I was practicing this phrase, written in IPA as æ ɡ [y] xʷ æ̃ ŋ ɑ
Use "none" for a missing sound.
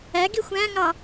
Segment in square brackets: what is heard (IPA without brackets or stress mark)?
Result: i